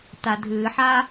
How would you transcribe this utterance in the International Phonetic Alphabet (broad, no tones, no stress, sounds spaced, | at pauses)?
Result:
t a dʱ ɨː ħ a